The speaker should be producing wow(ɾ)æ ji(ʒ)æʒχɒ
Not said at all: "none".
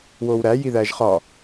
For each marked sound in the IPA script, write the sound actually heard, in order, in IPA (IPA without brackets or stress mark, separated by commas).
ɾ, ð